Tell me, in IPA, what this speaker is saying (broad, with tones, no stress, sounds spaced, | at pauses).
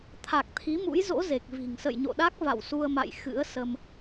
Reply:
t̪ʰ a˨˩ k̚ t̪ʰ i˨˦ m ṵ˧˥ j z o̰˧˥ z e˨˩ k̚ v i̤˨˩ ŋ s ə̰˧˨ j ɲ o̰˧˨ ɗ a˦˥ k̚ v a̰˧˨ w s u˧ ə̯ m a̰˧˨ j x ɨ̰˧˥ ə̯ s ə˧ m